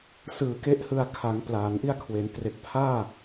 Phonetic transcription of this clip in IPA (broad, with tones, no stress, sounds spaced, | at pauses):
s ɯː˨˩ k e˦˥ ʔ h ɯ˧ a̯ kʰ a˩˦ ŋ p l aː˩˦ n ʔ i˧ a̯ kʰ w e˩˦ n t r e˨˩ k̚ pʰ aː˥˩